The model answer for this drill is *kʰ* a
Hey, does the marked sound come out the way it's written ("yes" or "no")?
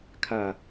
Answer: yes